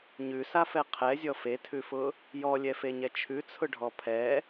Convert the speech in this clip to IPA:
ɲ ʉ s a f ɛ qʰ ɛ zʲ ɔ f e tʰ ʉ f ʊ | j ɔ lʲ ɛ f e ɲ ɛ t͡ʃʰ ʉ t͡sʰ ʊ ɖʱ ɔ pʰ ɛ

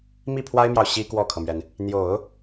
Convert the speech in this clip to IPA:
m i˥˩ pʰ w a˥ ɪ̯ m j ɑ˨ ʊ̯ ɕ i˥ k w ɔ˥˩ kʰ ɤ˩ m ɥ ɛ˩ n | n̪ j o˨˩˦ ʊ̯

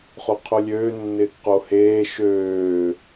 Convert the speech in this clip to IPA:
χ o qʰ o lʲ øː nː ɪː k q o h eː ʃ øː

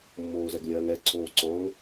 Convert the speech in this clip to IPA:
mː oː z ɛ ɡ lʲ ɜː ŋ ɛ ǀʰ oː ǀ ɔ̃ ŋ

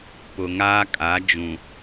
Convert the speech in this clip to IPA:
p ʊ˨ ŋ aː˦ kʼ a˨˦ d͡ʒ ũ˨

